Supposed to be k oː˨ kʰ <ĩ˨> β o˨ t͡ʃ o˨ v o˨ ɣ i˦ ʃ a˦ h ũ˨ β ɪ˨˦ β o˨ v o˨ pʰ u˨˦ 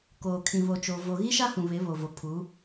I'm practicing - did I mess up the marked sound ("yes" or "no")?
no